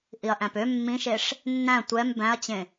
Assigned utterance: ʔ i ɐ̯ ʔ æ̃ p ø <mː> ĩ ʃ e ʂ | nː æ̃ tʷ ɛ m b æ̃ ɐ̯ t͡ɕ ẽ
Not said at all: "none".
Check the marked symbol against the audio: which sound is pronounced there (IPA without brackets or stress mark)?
mː